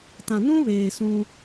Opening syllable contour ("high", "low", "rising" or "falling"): low